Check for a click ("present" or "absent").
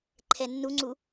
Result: present